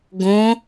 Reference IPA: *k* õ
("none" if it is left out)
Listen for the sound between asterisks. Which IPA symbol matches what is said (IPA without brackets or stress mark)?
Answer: ɡ